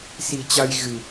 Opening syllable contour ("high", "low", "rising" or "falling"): low